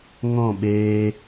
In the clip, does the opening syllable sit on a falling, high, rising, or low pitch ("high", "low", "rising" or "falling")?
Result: falling